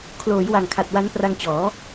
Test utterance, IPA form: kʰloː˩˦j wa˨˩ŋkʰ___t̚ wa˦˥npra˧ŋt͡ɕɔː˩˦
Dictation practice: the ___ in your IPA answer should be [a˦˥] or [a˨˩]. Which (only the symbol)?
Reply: a˨˩